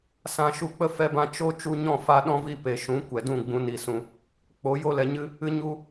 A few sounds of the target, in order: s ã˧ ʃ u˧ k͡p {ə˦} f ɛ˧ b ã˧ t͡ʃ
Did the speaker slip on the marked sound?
no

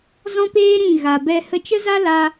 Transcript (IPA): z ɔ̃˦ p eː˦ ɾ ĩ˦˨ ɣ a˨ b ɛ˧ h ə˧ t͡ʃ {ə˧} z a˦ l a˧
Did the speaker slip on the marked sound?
yes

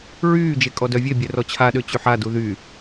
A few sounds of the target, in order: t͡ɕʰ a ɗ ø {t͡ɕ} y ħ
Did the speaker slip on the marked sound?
no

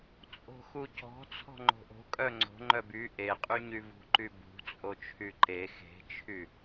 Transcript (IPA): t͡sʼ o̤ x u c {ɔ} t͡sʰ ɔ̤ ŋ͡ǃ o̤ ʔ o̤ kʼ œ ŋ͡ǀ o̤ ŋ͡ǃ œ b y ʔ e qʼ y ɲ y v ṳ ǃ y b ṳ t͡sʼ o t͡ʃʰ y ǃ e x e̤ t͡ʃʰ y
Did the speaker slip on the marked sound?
yes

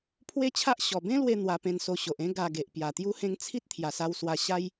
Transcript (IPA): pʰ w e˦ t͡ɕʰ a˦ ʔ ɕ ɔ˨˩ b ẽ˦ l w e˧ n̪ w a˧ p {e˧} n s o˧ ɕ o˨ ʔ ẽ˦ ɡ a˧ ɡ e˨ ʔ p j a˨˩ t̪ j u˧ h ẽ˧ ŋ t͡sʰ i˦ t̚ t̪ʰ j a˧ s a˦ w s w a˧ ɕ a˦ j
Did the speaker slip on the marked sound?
yes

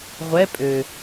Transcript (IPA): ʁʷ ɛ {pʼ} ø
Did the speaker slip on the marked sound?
no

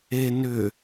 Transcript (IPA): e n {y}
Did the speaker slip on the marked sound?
yes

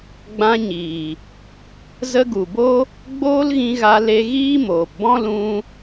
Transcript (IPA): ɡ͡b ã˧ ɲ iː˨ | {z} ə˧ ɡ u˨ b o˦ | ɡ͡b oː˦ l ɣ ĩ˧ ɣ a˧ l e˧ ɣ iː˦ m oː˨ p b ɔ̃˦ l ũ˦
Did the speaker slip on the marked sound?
no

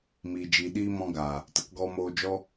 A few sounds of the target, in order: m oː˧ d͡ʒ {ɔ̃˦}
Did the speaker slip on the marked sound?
yes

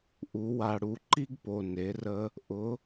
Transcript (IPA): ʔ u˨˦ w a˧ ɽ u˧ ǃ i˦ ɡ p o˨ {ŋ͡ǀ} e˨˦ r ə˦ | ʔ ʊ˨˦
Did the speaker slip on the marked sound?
yes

